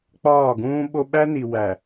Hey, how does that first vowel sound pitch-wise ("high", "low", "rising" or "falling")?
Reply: falling